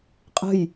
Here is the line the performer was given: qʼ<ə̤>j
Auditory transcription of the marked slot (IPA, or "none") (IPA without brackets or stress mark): ə̤